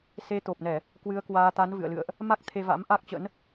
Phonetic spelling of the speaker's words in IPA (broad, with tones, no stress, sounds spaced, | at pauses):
s e˨˦ t̪ o˨˩ p̚ n ɛ˧˩˨ | k w ɨ˨˦ ə̯ k w aː˧ t̪ a˨˦ n v ɨ̰˧˨ ə̯ l ɨ̰˧˨ ə̯ ʔ | m a˦˥ k̚ t̪ʰ e˧ v a̰˧˥ m ʔ a˦˥ k̚ t͡ɕ ə̰˧˥ n